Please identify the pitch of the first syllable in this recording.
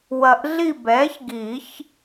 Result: low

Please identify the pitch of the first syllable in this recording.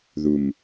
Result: low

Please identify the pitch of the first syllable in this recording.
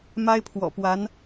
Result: high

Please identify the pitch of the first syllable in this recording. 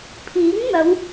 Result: rising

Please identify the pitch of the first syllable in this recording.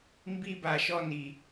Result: high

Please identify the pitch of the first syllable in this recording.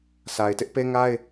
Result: low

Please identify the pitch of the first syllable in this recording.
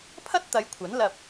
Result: high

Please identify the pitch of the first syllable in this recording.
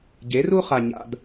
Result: rising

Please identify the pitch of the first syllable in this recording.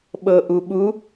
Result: low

